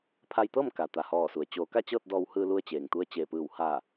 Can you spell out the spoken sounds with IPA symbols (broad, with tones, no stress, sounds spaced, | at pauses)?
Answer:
pʰ a˧ j t̪ ɤː˥˨ m k a˩ t̪ a˩ h ɔː˧˩ s u˩ ə̯ t͡ɕ oː˩˧ k a˥˨ t͡ɕ ɤː˥˨ t̚ d ɔː˧ w h ɯː˧ l u˧ ə̯ t͡ɕ eː˩ ŋ t̪ u˧ ə̯ t͡ɕ eː˧˩ p ɯː˧˩ w h aː˧˩